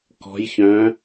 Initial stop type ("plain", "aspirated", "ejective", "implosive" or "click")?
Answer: plain